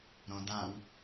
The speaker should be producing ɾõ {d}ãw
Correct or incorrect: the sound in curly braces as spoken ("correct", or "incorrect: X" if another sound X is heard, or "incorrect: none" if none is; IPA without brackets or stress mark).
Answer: correct